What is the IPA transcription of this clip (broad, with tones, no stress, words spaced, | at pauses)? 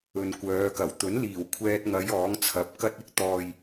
ɵ˨nkʷœː˨˧kɐ˨˩w t̪ɵ˨˥nliː˨˩wkʷʰɛː˧t̚ŋɐ˨˧j ɔː˨˥ŋt͡sʰɐ˨˥p̚ kɐ˥t̚ɪ˥k̚ t̪ɔː˨j